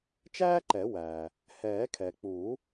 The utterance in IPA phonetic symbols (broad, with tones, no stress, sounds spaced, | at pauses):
t͡ʃ æː˥ ǃ ɛ˨˩˦ w æː˩ | h ɛː˨˩˦ kʰ ɛ˩ k͡p uː˨˩˦